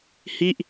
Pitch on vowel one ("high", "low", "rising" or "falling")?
falling